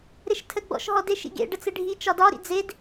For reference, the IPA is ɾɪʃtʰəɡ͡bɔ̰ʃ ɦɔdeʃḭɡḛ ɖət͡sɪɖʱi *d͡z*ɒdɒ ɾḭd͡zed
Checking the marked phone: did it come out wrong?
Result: yes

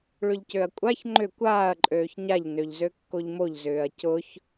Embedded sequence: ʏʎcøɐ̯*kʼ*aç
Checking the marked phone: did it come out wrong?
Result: yes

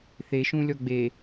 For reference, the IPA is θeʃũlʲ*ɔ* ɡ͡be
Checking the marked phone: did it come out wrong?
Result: no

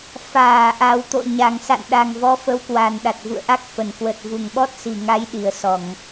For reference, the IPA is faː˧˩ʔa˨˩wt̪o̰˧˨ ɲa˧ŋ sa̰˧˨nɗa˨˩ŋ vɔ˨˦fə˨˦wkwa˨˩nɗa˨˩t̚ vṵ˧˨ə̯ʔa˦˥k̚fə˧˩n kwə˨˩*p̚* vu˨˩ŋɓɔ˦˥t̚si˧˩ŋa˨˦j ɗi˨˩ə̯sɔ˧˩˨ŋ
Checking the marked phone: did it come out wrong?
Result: yes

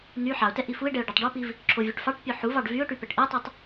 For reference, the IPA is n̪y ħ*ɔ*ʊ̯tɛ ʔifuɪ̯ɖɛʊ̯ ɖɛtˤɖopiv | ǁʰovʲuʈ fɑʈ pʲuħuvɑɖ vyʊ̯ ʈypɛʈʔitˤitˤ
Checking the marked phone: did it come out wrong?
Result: yes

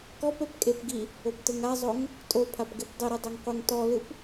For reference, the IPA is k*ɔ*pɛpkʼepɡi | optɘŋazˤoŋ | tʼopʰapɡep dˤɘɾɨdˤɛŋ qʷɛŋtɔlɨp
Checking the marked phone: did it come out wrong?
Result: no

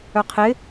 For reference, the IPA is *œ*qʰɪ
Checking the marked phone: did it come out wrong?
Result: no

